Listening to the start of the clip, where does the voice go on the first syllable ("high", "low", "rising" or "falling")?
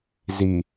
low